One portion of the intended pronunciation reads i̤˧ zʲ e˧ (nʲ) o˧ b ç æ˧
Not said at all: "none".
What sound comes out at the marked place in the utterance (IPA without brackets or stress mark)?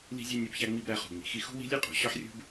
nʲ